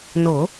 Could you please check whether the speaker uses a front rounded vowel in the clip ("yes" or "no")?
no